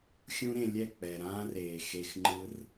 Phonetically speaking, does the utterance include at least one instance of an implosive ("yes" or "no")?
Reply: no